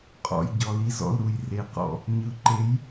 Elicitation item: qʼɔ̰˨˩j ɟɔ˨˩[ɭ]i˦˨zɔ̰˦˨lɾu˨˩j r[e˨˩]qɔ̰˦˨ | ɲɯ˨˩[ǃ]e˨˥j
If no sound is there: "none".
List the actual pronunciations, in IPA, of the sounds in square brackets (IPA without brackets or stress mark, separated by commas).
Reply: l, e˨˥, ǃ